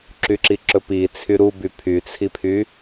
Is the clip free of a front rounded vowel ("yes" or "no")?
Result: no